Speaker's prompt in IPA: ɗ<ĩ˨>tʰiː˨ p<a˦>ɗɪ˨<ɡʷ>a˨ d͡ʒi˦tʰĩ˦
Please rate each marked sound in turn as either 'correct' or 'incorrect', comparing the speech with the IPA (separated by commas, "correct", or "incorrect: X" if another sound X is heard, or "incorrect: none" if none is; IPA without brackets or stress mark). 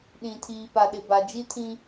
correct, incorrect: a˨, incorrect: b